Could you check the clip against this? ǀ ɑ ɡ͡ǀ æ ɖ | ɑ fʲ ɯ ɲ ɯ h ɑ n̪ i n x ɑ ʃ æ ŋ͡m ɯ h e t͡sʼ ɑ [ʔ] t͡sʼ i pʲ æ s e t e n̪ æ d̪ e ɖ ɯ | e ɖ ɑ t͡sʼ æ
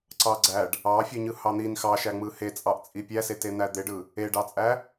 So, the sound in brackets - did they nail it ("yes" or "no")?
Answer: yes